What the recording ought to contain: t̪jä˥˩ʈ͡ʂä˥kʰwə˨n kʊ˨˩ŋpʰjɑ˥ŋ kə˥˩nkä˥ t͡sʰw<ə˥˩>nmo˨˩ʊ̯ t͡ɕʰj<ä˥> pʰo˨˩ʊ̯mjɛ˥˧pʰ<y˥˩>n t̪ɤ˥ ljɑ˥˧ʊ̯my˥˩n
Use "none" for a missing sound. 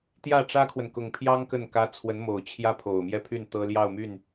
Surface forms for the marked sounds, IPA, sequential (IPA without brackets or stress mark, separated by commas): ə˧˥, ä˥, y˥˩